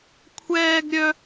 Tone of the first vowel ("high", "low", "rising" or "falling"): high